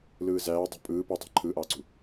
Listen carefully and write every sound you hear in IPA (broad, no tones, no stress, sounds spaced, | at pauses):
l ɯː z æː dˤ ṳ pʼ ɯː p u tˤ æ̤ ǃʰ ɯː ʔ ɑː ǀ ṳ